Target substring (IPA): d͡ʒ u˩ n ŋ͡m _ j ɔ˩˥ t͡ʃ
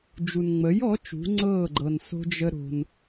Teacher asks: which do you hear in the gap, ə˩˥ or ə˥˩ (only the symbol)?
ə˩˥